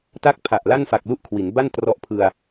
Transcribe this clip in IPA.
t a˥˩ k̚ pʰ a˨˩ ʔ l a˥˩ n f a˨˩ k̚ l u˥˩ ʔ kʰ w i˩˦ n b a˥˩ n t r ɔ˦˥ ʔ pʰ ɯ˧ a̯

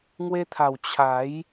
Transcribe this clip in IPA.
ŋ w e˧ t̪ʰ a˨˩ w t͡ɕʰ a˨˦ j

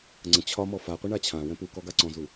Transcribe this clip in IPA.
ŋ͡ǀ ə̃ t͡ɕʰ ɒ m ɔ f a qʷ ə ɳ a t͡ɕʰ ã w ɛ̃ p u k ɔ ɡ a ǀ ɔ̃ z u

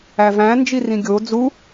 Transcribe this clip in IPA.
æ v æ̃ n d͡ʒ i r ĩ ɡʲ o d͡z u

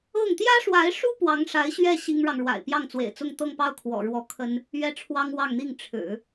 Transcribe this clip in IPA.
ɤ˥˩ ŋ t̪ j ä˥ ʂ w a˧˥ ɪ̯ ʂ u˥ p w ɑ˧˥ ŋ ʂ a˧˥ ɪ̯ ɕ ɥ ɛ˥˩ ɕ i˥ ŋ ɻ ɑ˨ ŋ ɻ w a̰˨˩ ɪ̯ p j ɑ˥˩ ŋ t͡s w ḛ˨˩ ɪ̯ t͡s ʊ˥˧ ŋ t̪ ɤ˥˧ ŋ p ɑ˥˩ ʊ̯ kʰ w ɔ̰˨˩ ɻ w ɔ˧˥ kʰ ə˥ n | ɥ ɛ˥˩ ʈ͡ʂʰ w ɑ˥ ŋ w ɑ˥˧ ŋ n̪ i˥˩ ŋ ʈ͡ʂʰ ɻ̩˨˩˦

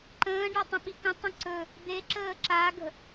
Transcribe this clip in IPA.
ǃ ə̃ː ɖ a tˤ ə̃ ɓ i k ə̃ tˤ ə̃ ǀ ɵ | d̪ e ǁ əː ǁ a ɡ ə̤

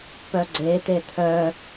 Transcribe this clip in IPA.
p œ ɡ͡ǀ e t̪ e t̪ʰ œ

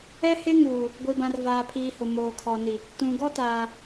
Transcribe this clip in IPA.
ɛ˦ h ɪ˦ ŋ uː˨ | ɡʷ i˨ b ã˨ r v aː˨ pʰ iː˨ h ʊ˨ m oː˨ kʰ ɔ˨ n i˨ | t ũ˨ ɡ ɔ˦ t aː˨

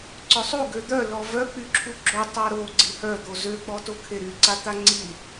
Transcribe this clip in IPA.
ǀ œ sˤ u ɡ ø d̪ œ l ɔ v œ k͡p y ǁʰ u ɡ͡ǁ o tˤ a ɾ o ɡ͡ǀ i h œ d̪ o z ø k͡p ɔ t o kʰ e ɾ y ǀ a t̪ a ŋ͡ǀ i

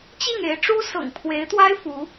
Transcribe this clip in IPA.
t͡ɕ i˥˩ ŋ e˧˥ ɪ̯ ʈ͡ʂ u˥ s ɤ̰˨˩ ŋ pʰ w e˧˥ ɪ̯ t̪ w a˥ ɪ̯ f u˧˥

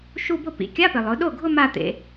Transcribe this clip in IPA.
ʃ u˥˧ b ʊ˥˩ p ḭ˩˧ kʲ a˧˥˧ p ɪ˩ lˠ ʊ˩˧ ɗ o˥˩ ɡʱ ʊ˥˧ m a˥˧ t̪ ḛ˩˧

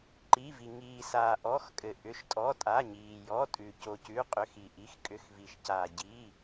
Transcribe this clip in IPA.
ǃ i˩˧˩ v i˩ ŋ iː˩ s aː˩ ʔ ɔ˩˧˩ x kʼ ɘ˩ ʔ ʏ˩˧˩ ʃ tʼ ɔ˩˧˩ tʼ a˩˧˩ ɲ iː˩ j ɔ˩˧˩ tʼ ʉ˩ c o˩ c ʉ˩˧˩ qʼ ʏ˩˧˩ x i˩ ʔ i˩˧˩ x kʼ ʏ˩˧˩ x v i˩ ʃ c aː˩ ɟ i˩˧˩

